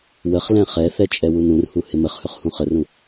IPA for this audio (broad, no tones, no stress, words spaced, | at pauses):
wəχlɛ̃ χɛθɛ t͡ʃʼɛwunũrhu hɪməχhɵχ hũχərũ